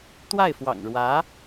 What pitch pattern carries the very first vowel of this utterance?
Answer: falling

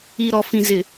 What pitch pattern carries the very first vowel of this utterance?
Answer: low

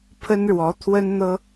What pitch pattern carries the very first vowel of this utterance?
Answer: high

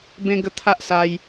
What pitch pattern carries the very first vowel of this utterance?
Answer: high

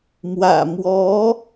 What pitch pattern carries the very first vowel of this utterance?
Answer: low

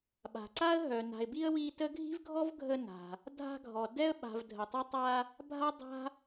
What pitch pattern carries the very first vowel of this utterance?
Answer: low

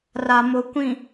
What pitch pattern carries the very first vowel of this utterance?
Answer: low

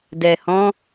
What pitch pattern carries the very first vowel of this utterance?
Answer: low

